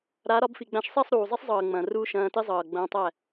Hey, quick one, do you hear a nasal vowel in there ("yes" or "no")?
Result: yes